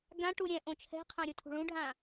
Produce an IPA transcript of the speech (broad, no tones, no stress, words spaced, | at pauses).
ɡãʈu ɾʲɛ̃ ʔõt͡ʃʰɛ̤qʰã ɾʲutʰṳɭũɖʱã